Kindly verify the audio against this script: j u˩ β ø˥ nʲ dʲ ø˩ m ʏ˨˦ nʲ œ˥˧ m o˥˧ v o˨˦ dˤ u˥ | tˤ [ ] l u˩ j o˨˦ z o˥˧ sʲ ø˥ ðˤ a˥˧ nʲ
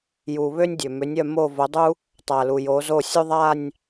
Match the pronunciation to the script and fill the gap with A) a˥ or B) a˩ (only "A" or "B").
B